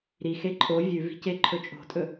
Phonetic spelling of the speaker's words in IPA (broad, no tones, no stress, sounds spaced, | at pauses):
ɾ i x e ǃʼ o vʲ ʉ v i̤ c e ǃʰ ɵ t͡ʃʼ o̤ tʼ ɵ